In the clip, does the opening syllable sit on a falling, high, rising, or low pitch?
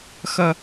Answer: low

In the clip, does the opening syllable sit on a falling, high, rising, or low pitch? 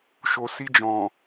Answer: low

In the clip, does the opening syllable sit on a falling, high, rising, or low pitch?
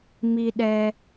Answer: low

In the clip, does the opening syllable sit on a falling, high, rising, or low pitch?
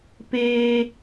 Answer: high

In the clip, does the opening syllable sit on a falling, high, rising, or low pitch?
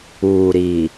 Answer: low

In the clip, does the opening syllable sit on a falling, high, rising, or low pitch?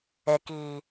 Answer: low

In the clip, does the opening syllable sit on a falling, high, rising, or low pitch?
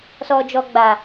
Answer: low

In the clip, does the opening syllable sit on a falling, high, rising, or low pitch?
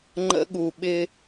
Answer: high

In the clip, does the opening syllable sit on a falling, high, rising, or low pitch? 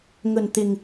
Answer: low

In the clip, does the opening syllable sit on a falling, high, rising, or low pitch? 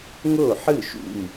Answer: falling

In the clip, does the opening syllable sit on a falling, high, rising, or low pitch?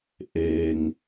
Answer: low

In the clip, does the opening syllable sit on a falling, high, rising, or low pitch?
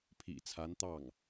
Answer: low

